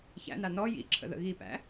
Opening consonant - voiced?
no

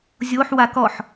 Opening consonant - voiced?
yes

